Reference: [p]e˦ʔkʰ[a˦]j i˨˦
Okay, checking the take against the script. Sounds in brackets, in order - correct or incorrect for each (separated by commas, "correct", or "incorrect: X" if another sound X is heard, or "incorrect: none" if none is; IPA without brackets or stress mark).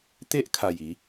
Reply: incorrect: t̪, incorrect: a˨˩